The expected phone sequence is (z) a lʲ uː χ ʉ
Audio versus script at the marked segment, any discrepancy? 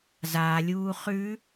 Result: no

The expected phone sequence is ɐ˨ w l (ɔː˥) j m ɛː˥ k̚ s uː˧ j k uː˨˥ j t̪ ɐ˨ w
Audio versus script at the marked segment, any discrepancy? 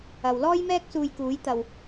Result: no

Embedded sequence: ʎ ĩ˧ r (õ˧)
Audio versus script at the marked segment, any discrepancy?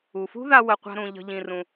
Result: yes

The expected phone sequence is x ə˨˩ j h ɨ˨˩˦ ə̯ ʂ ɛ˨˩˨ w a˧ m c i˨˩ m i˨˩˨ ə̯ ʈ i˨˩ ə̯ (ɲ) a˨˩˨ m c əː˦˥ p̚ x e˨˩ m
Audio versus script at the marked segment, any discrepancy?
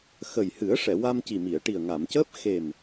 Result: yes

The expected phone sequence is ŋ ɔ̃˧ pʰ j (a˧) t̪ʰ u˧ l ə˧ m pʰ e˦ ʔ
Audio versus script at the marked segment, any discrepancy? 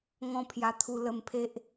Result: no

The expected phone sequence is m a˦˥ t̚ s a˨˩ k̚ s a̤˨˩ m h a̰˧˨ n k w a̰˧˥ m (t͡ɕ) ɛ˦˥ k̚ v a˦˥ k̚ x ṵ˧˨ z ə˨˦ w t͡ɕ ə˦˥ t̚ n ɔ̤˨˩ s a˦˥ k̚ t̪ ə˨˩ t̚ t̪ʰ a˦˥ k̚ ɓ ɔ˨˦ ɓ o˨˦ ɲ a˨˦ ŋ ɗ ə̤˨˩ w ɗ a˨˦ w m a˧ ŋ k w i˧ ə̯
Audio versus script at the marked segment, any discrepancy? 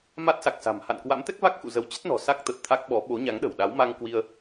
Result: yes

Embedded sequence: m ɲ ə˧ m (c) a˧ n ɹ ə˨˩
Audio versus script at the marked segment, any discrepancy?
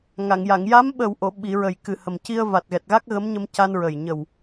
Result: no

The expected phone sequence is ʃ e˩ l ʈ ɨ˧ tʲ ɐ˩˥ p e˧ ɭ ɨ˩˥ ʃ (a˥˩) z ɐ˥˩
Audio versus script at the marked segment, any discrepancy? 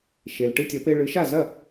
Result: no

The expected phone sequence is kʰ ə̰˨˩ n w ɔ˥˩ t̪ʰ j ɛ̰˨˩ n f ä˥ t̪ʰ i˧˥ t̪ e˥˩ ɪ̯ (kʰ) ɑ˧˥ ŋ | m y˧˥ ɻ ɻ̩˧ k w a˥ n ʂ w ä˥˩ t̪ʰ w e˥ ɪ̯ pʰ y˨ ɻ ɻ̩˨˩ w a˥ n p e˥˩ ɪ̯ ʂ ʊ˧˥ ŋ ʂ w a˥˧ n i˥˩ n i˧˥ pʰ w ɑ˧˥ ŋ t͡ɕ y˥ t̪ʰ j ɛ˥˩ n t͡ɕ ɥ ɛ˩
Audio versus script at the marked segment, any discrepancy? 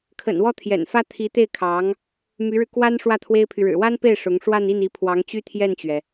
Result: no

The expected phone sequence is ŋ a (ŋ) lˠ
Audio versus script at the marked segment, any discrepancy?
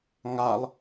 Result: yes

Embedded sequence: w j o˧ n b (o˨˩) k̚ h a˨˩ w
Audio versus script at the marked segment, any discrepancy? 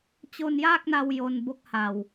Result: yes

